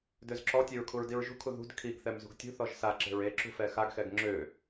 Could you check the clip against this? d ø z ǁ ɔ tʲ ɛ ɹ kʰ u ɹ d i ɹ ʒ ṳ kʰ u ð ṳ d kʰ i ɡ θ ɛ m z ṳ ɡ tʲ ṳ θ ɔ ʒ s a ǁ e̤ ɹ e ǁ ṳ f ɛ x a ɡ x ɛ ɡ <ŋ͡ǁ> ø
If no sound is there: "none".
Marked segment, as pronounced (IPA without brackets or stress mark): ŋ͡ǁ